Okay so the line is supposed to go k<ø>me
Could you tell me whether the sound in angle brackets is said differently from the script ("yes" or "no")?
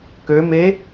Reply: no